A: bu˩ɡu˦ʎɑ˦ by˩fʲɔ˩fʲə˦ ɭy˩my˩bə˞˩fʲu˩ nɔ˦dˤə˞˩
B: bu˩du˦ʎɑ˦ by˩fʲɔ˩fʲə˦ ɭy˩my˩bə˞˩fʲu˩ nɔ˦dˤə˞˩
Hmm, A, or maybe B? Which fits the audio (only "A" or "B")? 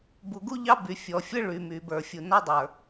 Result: A